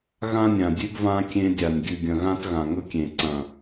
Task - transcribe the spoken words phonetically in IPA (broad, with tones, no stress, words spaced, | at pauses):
ɣã˦nʲã˨dʲʉ˦ɡvã˦ kʲẽ˦dʲa˨nʲ ɡʲʉ˨ɡʲɐ̃˨ɣã˦t ɣã˨ŋɵ˦kʲẽ˨ǀɐ̃˨